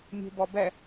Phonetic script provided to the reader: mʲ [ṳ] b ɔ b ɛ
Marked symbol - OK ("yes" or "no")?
yes